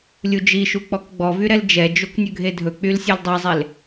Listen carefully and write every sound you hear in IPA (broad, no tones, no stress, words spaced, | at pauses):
lʲud͡ʒiʃu k͡pɔkɡ͡bɔvy ɾɛld͡ʒɛd͡ʒok nʲɵɡʱedʱɵk͡pyl sʲɛldˤɛzˤel